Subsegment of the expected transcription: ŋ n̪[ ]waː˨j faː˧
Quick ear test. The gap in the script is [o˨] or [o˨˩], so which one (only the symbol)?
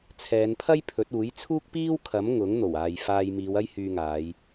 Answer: o˨˩